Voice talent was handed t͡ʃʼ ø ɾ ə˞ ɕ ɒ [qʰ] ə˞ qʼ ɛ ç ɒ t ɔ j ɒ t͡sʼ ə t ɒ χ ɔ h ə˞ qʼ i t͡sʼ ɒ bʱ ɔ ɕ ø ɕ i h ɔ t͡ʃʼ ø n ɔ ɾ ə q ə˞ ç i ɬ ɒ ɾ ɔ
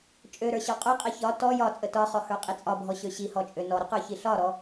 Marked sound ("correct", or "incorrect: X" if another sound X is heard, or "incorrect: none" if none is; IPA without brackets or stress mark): incorrect: qʼ